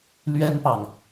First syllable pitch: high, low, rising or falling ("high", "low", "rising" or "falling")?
high